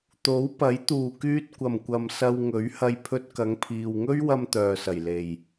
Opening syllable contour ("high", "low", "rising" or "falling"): rising